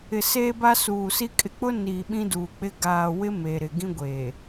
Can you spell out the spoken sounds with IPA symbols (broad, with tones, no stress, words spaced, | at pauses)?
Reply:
ɪ˨seː˦ba˦ suː˨si˦ kʼɪ˨k͡pʊ˦ niː˨ ɓĩ˦duː˨k͡pɪ˦ ɡaː˨wɪ˦ me˨ɾɪ˨ɡĩ˦ ɡʷe˨